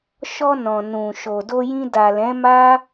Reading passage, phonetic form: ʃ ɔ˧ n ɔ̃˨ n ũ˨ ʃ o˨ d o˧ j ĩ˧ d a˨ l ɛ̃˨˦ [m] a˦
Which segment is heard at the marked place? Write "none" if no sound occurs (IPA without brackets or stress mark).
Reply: m